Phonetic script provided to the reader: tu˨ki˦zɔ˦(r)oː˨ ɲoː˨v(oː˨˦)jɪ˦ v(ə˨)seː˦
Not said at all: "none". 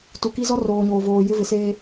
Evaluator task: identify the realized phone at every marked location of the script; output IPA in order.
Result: r, oː˨, ɪ˨

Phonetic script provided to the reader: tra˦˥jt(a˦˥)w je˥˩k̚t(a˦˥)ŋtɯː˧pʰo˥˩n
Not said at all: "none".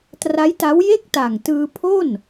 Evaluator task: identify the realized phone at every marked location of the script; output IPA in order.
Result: a˦˥, a˨˩

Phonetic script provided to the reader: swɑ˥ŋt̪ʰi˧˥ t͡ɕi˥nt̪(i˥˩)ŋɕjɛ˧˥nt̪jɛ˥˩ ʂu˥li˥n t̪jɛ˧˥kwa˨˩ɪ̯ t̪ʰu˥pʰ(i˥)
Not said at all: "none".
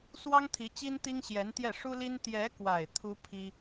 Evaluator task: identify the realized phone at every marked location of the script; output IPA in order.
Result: i˥, i˥

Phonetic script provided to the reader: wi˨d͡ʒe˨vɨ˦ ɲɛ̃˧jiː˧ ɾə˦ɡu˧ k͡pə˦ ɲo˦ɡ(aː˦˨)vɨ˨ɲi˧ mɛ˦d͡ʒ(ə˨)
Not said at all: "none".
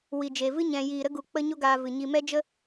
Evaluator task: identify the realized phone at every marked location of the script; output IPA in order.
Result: aː˧, ə˦

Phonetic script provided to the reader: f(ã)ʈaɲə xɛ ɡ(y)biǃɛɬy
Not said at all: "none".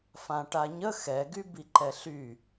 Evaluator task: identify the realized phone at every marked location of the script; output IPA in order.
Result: ã, y

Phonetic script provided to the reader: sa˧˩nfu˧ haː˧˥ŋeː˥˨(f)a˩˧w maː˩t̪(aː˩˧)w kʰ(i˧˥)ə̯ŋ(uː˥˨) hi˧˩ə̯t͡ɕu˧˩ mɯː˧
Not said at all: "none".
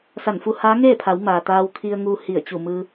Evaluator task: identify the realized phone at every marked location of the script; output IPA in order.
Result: pʰ, aː˧, i˧, uː˧

